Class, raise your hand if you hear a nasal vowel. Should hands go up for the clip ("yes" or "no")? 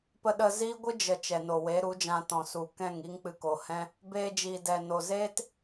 yes